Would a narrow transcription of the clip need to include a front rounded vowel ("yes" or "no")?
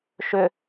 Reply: yes